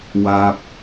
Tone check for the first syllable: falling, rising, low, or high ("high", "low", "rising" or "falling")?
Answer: low